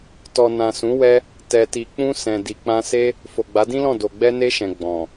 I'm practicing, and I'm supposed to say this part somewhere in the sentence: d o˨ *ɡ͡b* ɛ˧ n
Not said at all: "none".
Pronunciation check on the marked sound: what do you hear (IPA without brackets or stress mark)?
ɡ͡b